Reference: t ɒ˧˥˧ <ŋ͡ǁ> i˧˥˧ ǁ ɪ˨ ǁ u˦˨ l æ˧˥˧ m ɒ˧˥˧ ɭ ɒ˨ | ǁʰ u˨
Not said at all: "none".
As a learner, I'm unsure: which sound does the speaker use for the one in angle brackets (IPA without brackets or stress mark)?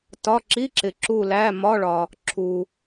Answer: ǁ